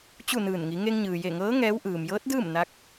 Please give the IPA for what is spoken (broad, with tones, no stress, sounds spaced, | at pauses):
t͡ɕ u˥˨ n ɯː˧˩ n ŋ i˩˧ ŋ e˧ ŋ ɲ ɯː˩ j e˧˩ ŋ ɤː˧˥ ŋ ɛː˧˥ w ʔ ɯː˩ m j ɤː˧˥ t̚ d ɯː˥˨ m n a˧˥ k̚